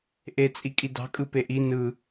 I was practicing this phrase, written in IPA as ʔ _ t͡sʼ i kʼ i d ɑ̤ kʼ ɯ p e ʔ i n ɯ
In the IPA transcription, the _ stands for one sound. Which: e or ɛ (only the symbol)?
e